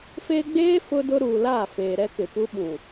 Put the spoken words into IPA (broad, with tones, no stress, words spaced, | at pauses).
feː˦ ɡ͡beː˦ fʊ˦dʊ˦ ɾuː˨laː˦˨feː˨ ɾɛ˦ kɪ˨pu˦ɓũ˨